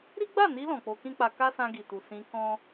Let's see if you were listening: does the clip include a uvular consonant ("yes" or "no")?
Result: no